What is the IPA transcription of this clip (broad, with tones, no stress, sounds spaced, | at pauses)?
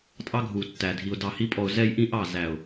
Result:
tʼ ɑ˦ ɡʱ u˨ tː æ˨ dʱ i˨ ʊ̯ d ɑ˨ h i˧ pʼ ɔ˨ ʊ̯ z ɛ˦ j ʔ ĩ˦ ʔ ɑ˦˨ z æ˨ ʊ̯